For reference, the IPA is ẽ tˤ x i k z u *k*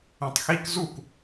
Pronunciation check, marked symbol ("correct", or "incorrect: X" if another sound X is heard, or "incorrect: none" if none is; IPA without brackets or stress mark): correct